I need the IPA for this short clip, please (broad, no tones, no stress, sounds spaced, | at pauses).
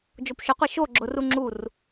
d͡ʒ o p ʃ ʊ qʷ e ʃ o ɡ͡ǁ ʊ r u ŋ͡ǁ u r